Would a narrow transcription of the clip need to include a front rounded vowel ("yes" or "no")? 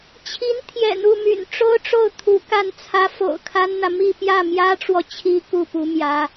yes